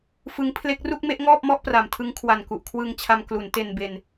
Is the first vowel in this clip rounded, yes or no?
no